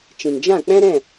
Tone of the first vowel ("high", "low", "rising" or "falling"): low